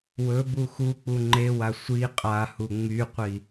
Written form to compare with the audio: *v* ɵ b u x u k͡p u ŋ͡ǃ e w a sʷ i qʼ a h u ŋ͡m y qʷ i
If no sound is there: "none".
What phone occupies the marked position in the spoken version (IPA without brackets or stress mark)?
w